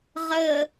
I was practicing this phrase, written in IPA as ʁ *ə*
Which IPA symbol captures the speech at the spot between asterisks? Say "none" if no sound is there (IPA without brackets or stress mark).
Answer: ə